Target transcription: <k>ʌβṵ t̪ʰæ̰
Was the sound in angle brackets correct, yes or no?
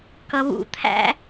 yes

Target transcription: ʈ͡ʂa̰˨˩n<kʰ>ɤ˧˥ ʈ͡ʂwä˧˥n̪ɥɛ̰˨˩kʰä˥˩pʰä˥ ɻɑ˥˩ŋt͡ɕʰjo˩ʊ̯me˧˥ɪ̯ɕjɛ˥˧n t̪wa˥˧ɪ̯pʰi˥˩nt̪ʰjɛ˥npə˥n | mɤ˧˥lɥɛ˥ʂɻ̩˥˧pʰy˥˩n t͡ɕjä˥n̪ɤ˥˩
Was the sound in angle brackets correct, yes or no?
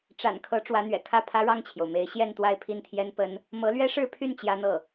yes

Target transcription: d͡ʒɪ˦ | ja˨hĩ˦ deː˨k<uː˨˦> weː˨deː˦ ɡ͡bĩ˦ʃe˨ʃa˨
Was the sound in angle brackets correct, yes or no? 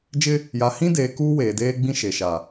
no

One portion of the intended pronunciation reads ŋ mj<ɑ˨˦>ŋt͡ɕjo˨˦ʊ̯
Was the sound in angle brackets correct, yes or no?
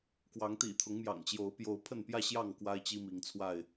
no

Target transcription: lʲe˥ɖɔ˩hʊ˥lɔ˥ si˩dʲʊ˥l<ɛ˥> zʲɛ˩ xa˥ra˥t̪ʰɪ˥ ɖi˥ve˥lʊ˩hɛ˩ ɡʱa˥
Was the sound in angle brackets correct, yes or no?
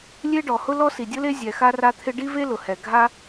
no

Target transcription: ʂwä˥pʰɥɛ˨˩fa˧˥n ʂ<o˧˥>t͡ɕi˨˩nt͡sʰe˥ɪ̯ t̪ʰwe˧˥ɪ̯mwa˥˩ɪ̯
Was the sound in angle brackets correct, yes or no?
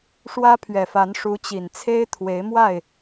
no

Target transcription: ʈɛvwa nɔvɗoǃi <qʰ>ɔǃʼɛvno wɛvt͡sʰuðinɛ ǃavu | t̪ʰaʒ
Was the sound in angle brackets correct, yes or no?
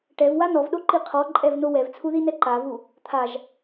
yes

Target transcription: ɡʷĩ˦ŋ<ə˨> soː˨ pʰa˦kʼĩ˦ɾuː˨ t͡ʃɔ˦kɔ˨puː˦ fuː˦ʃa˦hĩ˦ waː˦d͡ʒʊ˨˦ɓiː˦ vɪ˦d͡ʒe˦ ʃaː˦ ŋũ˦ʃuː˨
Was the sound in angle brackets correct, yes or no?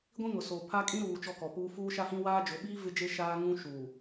no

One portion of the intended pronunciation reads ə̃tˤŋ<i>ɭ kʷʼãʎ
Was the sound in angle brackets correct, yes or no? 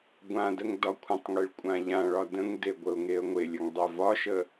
no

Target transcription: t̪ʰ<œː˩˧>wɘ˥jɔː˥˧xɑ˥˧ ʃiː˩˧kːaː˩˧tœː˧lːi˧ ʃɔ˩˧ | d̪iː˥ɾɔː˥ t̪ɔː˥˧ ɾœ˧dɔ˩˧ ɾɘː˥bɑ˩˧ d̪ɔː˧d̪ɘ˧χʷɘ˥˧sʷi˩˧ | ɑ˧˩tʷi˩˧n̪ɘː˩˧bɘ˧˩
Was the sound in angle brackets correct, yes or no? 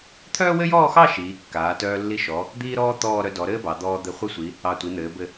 no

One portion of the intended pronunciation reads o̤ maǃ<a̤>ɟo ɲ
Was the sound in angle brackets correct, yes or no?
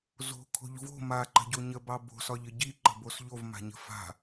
no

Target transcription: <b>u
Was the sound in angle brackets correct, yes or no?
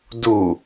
no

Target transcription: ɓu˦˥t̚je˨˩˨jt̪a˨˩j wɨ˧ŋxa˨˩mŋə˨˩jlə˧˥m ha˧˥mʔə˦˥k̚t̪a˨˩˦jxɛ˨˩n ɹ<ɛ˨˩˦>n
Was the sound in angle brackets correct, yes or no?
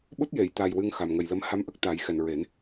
no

